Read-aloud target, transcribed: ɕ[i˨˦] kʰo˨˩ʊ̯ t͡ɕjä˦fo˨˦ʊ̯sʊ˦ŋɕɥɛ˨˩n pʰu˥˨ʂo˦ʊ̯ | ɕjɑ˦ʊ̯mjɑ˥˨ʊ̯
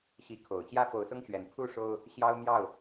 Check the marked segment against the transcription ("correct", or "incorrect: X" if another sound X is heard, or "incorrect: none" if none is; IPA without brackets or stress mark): correct